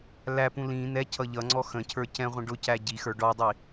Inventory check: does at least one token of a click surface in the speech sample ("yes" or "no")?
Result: yes